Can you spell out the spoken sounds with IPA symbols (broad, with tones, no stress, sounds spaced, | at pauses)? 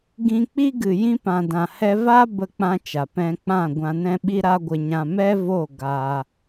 ɡ ĩ˧ k͡p i˦ ɡ ɨ˨ j ĩ˧ p ã˨ d ã˨ h ɛ˧ v a˦ b ə˧ k͡p ã˧ t͡ʃ a˨ p ɛ̃˧ k͡p ã˦˨ ɡʷ ã˧ n ɛ̃˦ ɓ i˦ ɾ a˦ ɡʷ ə˧ ɲ ã˧ m ɛ˦ v o˦˨ ɡ a˧